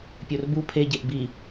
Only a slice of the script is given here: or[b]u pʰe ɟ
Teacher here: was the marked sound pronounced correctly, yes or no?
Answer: yes